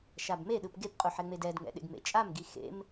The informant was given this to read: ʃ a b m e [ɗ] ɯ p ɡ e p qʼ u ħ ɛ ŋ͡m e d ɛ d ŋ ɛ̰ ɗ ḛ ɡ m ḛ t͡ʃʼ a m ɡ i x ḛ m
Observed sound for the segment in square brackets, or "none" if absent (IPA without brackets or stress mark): ɗ